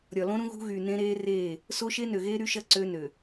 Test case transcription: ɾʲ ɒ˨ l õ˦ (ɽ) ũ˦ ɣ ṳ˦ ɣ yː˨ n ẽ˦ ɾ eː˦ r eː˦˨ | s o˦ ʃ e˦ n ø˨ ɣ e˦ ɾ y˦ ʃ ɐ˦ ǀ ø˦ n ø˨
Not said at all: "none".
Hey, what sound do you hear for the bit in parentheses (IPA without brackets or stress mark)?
ɾ